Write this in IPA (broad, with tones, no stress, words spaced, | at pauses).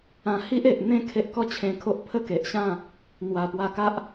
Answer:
ã˧hi˦ʔ e˨ʔ n̪ẽ˥˧ kʰe˦ʔkɔ˥˧t͡ɕʰẽ˧kʰo˦ʔ pʰə˥˧ke˨ʔɕã˥˧ | n̪wa˨˩pwa˧ka˦ʔ